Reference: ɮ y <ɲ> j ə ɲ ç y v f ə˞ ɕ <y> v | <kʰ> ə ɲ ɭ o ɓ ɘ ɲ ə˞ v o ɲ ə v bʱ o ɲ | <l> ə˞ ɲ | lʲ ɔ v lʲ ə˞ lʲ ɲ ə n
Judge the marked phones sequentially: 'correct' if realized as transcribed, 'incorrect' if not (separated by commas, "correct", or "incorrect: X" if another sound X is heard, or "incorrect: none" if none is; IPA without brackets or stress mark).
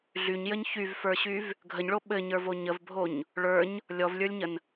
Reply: correct, correct, incorrect: ɡʱ, incorrect: ɭ